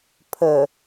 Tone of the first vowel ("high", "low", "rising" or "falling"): low